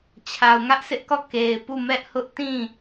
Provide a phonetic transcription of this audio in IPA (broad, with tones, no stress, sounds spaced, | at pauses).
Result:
t͡ɕʰ a˨ ʊ̯ ŋ ä˦ ʔ sʰ ɪ˦ ʔ k ɔ˦˨ k e˨ ɪ̯ p u˦˨ m ɛ˦ ʔ h ʊ˦ ʔ t ĩ˦˨